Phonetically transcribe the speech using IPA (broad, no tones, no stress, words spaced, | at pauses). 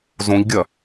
zõʎɡʲɐ